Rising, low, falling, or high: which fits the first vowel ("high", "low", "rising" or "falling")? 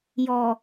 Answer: low